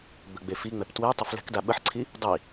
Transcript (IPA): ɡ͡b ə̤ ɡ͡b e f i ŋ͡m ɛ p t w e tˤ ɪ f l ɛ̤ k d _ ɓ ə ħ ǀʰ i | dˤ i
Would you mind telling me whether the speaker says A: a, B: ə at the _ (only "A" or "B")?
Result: A